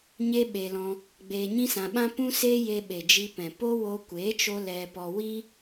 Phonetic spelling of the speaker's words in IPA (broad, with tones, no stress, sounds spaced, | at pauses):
ɲ e˦ ɓ e˧ l ɔ̃˧ | ɡ͡b eː˧ ɲ ĩ˦ s ã˧ ɓ ã˦ p ũ˦ s e˦ j e˧ ɓ e˨ d͡ʒ i˧ p ɛ̃˨ p o˦ w o˧ kʷ eː˨˦ t͡ʃ o˧ l ɛ˧ p ɔ˧ w i˧